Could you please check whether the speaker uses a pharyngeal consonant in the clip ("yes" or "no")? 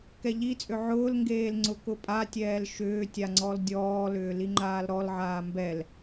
yes